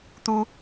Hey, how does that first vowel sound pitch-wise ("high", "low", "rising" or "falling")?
high